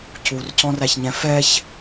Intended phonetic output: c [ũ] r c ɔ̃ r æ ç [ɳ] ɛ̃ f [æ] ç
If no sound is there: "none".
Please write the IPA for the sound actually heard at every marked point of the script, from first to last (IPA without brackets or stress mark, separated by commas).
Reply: u, ɲ, ɛ